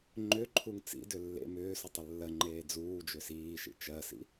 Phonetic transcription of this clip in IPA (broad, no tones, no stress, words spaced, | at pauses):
ŋ͡ǃʏ ǃʰuŋt͡sḭdʏ lːḛ mʏː sutˤʏlːɜŋ͡ǃeː d͡zuː d͡ʒʏsiːʃḭ t͡ʃɜsḭ